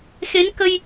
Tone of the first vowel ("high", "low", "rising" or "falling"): rising